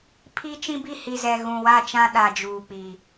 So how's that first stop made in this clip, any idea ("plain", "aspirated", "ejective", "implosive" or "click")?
aspirated